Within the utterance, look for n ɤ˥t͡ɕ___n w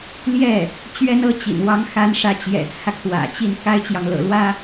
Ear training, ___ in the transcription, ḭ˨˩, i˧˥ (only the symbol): ḭ˨˩